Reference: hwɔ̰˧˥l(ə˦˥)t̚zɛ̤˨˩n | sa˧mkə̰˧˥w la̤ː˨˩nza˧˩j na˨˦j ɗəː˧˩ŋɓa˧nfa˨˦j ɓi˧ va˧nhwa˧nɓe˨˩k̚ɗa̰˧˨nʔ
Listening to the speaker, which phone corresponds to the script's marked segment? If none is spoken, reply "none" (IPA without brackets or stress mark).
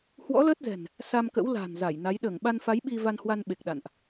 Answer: əː˦˥